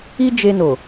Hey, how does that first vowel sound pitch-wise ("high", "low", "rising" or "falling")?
high